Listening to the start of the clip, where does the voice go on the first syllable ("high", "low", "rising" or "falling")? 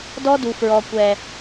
high